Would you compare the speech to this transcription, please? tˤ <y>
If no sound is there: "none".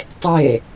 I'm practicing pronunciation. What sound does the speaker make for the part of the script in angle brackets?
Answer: e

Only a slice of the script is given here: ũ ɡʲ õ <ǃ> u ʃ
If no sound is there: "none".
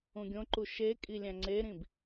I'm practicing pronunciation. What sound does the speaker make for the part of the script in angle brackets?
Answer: ǃ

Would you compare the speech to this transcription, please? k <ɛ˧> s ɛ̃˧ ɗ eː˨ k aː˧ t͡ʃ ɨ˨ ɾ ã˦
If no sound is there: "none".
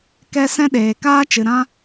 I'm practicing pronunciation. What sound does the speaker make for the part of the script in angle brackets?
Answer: ɛ˧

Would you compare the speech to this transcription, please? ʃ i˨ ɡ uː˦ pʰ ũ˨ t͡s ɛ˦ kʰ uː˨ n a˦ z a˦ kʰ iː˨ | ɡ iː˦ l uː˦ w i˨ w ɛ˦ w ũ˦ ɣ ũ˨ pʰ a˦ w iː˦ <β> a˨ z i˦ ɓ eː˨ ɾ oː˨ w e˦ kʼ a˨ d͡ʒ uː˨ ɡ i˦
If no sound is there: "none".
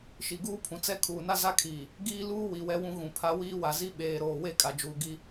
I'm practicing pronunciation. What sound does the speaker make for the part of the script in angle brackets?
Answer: w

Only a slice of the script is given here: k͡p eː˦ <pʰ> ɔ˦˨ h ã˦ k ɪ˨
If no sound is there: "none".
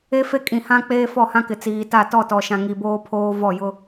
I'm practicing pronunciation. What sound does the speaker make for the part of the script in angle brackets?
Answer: f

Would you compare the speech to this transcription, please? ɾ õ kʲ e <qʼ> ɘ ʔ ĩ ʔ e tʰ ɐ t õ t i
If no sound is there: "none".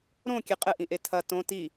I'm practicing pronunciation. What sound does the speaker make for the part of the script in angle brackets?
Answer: qʼ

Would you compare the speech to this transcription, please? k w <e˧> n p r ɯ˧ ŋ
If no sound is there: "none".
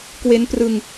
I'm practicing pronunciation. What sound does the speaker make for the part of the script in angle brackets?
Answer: e˦˥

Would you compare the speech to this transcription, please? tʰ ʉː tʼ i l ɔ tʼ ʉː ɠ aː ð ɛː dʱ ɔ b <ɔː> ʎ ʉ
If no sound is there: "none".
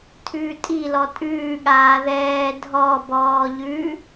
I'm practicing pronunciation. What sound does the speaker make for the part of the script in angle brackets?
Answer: ɔː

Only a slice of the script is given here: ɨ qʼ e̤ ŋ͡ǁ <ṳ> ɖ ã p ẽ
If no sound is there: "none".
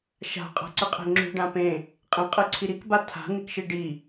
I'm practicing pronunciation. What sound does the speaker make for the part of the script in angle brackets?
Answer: ṳ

